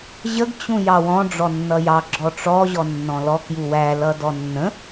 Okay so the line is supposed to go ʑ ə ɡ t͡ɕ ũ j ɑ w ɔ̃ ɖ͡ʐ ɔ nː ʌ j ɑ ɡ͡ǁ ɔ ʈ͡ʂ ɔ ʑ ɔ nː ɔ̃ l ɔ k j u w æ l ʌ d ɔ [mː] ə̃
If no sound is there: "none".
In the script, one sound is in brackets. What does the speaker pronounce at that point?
nː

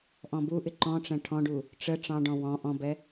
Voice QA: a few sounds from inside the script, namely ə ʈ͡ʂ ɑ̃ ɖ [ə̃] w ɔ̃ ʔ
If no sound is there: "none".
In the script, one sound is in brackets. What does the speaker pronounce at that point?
ɔ̃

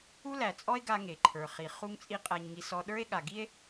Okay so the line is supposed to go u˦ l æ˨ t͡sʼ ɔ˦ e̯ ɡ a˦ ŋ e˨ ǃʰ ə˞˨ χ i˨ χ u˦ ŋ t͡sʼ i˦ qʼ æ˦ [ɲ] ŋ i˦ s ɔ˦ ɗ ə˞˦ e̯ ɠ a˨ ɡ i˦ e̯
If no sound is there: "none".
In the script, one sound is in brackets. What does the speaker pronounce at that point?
ɲ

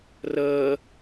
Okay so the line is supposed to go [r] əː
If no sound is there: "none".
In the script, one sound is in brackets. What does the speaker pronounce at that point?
r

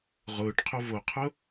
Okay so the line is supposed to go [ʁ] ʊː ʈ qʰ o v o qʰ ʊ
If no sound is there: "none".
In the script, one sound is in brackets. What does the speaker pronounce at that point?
ʁ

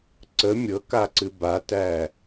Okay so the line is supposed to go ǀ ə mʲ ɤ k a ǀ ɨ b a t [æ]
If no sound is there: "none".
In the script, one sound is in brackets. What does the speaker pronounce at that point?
æ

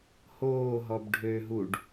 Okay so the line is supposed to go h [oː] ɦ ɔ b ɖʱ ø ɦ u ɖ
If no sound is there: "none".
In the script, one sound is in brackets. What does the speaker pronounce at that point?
oː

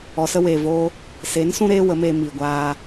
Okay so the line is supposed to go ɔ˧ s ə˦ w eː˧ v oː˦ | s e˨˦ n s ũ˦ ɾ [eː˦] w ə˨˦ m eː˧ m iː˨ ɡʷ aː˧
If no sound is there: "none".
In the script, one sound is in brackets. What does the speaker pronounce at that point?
eː˦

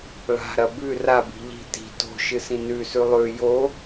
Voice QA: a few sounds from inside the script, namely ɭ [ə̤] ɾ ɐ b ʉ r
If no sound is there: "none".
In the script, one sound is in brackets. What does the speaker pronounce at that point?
a̤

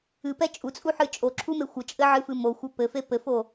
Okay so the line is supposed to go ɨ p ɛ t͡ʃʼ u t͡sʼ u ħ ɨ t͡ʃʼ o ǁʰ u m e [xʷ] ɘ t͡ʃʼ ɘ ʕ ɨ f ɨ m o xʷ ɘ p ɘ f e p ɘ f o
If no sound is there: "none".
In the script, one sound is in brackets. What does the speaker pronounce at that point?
xʷ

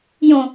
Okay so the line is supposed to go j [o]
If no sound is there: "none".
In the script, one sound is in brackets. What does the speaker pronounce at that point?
õ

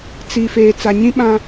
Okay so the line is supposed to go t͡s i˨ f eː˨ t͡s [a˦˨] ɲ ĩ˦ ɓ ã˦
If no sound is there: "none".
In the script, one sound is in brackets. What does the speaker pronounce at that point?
a˨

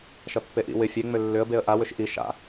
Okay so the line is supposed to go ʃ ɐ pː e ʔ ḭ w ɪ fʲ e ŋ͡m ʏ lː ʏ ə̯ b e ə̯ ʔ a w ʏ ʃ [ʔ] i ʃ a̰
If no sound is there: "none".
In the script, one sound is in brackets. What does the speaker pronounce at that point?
ʔ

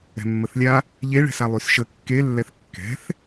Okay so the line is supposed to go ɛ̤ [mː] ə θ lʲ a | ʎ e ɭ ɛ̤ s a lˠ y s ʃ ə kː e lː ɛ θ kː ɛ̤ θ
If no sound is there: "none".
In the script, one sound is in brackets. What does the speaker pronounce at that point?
mː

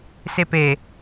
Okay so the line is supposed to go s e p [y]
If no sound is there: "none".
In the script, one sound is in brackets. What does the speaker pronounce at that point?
e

